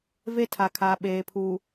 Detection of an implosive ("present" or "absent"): present